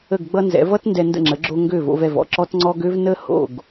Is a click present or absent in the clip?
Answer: present